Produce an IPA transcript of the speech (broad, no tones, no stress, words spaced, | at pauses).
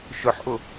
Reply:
ʃʊħʔʊ